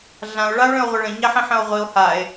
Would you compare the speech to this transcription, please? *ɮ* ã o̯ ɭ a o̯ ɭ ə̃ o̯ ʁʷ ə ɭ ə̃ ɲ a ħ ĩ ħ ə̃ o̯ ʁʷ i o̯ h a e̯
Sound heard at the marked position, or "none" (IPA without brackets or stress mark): ɮ